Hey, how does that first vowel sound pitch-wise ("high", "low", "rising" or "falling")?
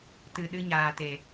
low